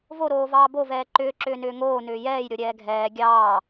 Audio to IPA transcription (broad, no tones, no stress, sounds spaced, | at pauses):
v o ɾ oː v ɑː b o v ɛː ǃ ʏː ǁ ʏː n ʏː ŋ oː n ʏː j ɛː j ɾʲ o ɾʲ ɛː ɡʱ ɛː ɡʲ ɑː